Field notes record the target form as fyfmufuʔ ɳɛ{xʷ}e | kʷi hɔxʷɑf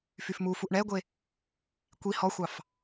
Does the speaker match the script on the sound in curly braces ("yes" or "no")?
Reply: no